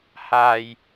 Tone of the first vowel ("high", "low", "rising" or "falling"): low